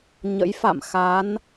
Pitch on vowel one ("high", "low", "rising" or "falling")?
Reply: rising